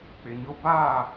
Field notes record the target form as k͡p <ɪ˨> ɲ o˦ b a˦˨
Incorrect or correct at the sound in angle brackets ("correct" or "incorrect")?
correct